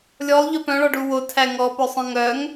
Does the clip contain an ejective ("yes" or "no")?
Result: no